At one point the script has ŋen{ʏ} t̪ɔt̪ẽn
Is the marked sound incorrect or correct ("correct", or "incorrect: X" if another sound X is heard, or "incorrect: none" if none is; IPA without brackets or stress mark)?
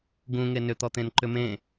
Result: correct